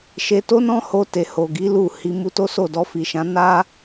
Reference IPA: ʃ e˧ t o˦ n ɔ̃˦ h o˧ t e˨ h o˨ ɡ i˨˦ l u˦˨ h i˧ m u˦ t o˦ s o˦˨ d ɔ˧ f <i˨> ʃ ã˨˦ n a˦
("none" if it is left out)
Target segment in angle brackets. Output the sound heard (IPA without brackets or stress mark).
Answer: i˨